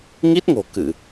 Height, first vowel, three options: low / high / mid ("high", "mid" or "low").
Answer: high